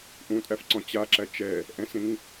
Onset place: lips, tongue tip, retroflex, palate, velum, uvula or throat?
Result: throat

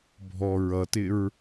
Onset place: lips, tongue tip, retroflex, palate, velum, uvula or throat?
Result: lips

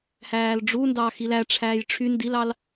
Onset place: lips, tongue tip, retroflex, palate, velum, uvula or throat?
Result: throat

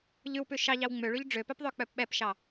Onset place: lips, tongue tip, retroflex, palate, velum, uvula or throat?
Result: palate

